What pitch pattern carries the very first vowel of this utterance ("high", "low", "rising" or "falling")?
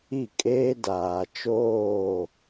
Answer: falling